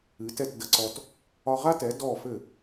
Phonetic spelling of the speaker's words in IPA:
ɨ˩˥tɛ˥˩t də˧ǀɔ˧t | ɒ˧ʁa˥tɛ˩˥ dɔ˥˩fɘ˥˩

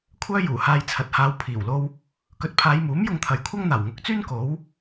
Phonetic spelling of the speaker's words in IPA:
kʷʰœː˥juː˨˩haː˧j t͡sʰɐ˨t̚haː˨˧w pʰiː˨˩wlo˧w | kɵ˨˥t̚pʰaː˨˧jmuː˨˥m jʊ˧ŋt̪ʰɐ˨jkʷʰɐ˥ŋ n̪aː˨˩wŋʊ˨˥k̚t͡syː˥n ko˨˥w

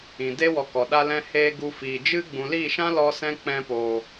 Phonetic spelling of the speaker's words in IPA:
ĩ˨de˦ wɔ˧kɔ˨ ɗa˧lɛ̃˧heː˧ ɡu˧fiː˨ d͡ʒɨ˦ ɡ͡bũ˨liː˦˨ʃã˦ lɔ˦sɛ̃˦ k͡pɛ̃˧poː˨

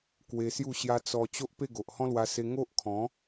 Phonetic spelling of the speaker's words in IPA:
kwe˧sju˥˧ɕja˦ t͡sɔ˧ t͡ɕo˦ʔpe˥˧ ɡo˨ʔhɔ̃˦lwa˧se˧ ŋo˦ʔkʰɔ̃˨˦

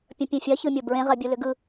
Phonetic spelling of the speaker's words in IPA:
pʲə̃pʲẽfʲɐ çɯmʲobɹẽ ʁɜbʲulʏɡɯ

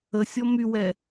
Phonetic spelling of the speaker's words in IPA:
əsʲɔ mywɛ

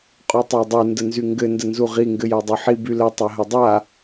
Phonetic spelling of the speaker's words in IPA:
qʼutˤadˤu ndənzyŋɡɘ ndənzuʁi ŋɡɘjadˤøħi bylə tˤaɦɘdˤa

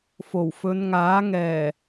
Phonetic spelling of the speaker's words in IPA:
fo˨˩wfɵ˨˧nŋaː˨˥ ŋɛː˨˩

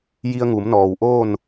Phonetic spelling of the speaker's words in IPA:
ji˧ə̯ŋu˩˧mnɔː˩wʔoː˥˨n

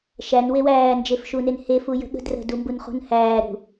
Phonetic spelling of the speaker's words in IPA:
ʃæn wewæː nd͡ʒefʃunenhe fujə̤ɠə̤ drə̤ dumbunχṳn hæː ɾṳ

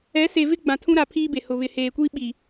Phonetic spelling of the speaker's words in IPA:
ɛ˨˦se˨vɪ˦ ɡ͡bã˨tʰũ˦ɾa˨ pʰiː˦be˨hʊ˨ βɪ˨heː˨kʷi˦ ɓi˨

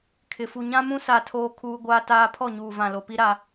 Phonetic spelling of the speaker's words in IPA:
kʰɪ˨ fu˨ɲã˦mũ˦ sa˦˨tʰoː˦kʰuː˦ ɡʷaː˦taː˦ pʰɔ˦˨ɲuː˨vã˨ lo˨pi˦ɾa˦

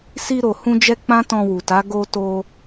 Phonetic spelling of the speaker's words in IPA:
si˧ɾo˨hũ˧d͡ʒɛ˧ k͡pã˦tɔ̃˧wu˨ta˨˦ ɡo˧ to˧

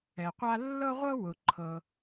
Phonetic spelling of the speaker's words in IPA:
ɛ˩qʷa˥ lːɤ˥ʁʷɤ˥ wʊ˩ ǃʰɤ˩

